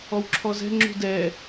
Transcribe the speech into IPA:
ɔwǁʰɔzɛ̤ ŋ͡ǁṳdɛ

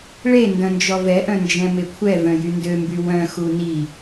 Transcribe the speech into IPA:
ɭe ndœ̃nd͡ʒɔvɛʔœ̃ nd͡ʒɛ̃mekʷʰɛvœ̃ jyndømby wœ̃xu ni

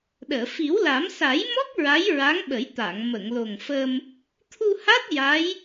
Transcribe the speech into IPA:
ɗəː˨˩˨ fi˨˩˦wla˨˩˦m sa˨˩˦jmɔ˦˥k̚ ɹa˧˥jɹa˧˥ŋɓə˨˩˦jt̪a˨˩˨ŋ mə˨˩˨ŋlo˨˩ŋfə˧m | t̪ʰu˧ha˦˥t̚ ja˧˥j

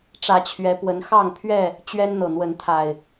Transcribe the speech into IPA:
ʈ͡ʂä˨˦t͡ɕʰɥɛ˨˦pwə˨˦n xɑ˥˨ŋpʰɥɛ˥˨ | t͡ɕɥɛ˦n n̪ɤ˨˩n̪wə˨˦nt̪ʰa˨˩ɪ̯

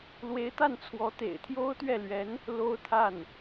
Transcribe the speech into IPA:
lwe˧˥ɪ̯t̪a˥˩nt͡sʰwɔ˧˥ t̪ḛ˨˩ɪ̯t̪ʰjo˥ʊ̯t̪ɥɛ˥˩lɥɛ˧˥n | lo˥ʊ̯t̪ʰa˥˩n

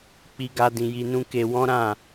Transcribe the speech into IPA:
k͡pi˦ɡa˦dĩ˧ ji˧nũ˦ke˧ wɔ̃˦ɾã˦˨

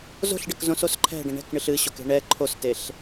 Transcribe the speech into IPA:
zo̤ɬɖək zõsos ǃʰɛ̤ɖə̃ ɳɛ̤kɳɨɬ ɨɕoke̤ ɳɛ ǃʰosteɬ

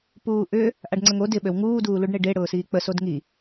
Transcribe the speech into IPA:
puːʔʏ | ʔaɖŋ͡ǀəŋo dɪ ɓøwŋuː duːluɖɳeɖe ɽʊːsiːk͡pə sodŋi

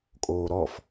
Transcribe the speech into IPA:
kʼoːɾɔf

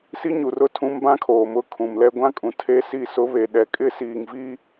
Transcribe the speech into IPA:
si˦ɲu˨rʊ˦˨tʰũ˦m bã˦kʰoː˨mʊ˦˨ kʰũ˨mlɛ˦ ɡʷã˦kʼũ˨ tʰe˦si˦˨sʊ˦ βe˨ɗɛ˨kʼɪ˦ siː˨ŋvi˦

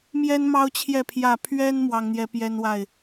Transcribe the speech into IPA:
mjɛ˦nmɑ˦ʊ̯t͡ɕʰjɛ˥˨ pʰjä˥˨ pʰɥɛ˦n mwɑ˦ŋn̪jɛ˦pjɛ˦nwa˥˨ɪ̯

